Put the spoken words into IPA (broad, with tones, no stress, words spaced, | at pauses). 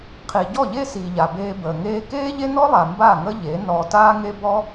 qʰi˨ɟɔ˦˨ʎe˦ si˨ ʎa˨beː˧bəː˨ŋeː˦ keː˦ʎe˦nɔ˦lˠa˨ mba˦˨ŋə˦ʎe˨˦ nɔː˧taː˦ŋe˦ bɔ˦